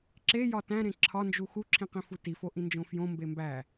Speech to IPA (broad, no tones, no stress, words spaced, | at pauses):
ǁejɒ tæ̃ɾẽ ǁʰɒnd͡ʒu xuǁʰĩ qĩfutifo ʔĩnd͡ʒõfjõmbe mbæ